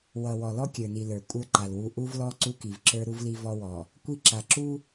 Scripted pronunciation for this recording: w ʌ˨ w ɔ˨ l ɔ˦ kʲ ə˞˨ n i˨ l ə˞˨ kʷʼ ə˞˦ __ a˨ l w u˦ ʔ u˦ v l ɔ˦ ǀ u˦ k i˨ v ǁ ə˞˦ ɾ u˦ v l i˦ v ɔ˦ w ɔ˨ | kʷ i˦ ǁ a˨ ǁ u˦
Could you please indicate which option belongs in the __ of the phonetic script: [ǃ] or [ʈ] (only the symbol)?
ǃ